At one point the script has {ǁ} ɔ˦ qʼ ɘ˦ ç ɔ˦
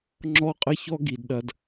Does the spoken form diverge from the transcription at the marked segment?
yes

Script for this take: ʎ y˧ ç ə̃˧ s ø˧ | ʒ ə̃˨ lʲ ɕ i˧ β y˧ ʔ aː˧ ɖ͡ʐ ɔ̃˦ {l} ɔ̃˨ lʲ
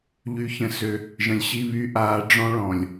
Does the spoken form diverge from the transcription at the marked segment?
yes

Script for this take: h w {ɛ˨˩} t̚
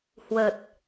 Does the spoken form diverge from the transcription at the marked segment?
yes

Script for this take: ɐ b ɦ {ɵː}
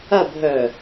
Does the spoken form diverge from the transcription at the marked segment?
yes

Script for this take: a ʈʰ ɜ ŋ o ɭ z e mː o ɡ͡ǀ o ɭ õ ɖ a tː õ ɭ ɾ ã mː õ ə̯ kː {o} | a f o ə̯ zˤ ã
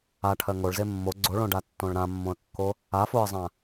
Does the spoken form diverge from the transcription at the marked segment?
no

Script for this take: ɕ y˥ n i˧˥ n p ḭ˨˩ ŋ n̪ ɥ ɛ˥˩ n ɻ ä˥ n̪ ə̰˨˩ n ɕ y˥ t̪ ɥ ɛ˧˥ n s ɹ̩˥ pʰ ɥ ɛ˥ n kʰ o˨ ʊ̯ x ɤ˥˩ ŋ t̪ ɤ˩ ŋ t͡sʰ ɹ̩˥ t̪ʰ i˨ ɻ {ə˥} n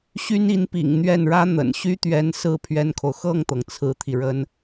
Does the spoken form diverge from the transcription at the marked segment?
no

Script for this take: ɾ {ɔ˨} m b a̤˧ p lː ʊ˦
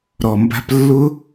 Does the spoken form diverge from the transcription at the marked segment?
no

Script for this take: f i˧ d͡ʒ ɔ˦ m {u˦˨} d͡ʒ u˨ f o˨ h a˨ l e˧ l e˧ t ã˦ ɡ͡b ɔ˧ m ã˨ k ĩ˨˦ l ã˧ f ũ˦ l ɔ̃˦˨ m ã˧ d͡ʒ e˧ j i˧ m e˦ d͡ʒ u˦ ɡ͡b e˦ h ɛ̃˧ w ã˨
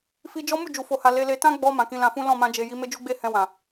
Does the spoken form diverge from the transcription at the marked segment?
no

